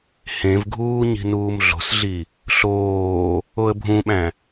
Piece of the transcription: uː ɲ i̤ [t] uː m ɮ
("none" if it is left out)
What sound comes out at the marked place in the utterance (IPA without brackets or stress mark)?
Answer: n